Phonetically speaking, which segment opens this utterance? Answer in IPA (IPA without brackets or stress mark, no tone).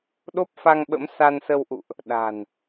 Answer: ɗ